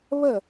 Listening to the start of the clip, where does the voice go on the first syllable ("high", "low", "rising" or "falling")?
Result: falling